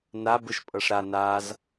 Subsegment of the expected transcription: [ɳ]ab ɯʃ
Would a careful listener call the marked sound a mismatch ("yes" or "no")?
yes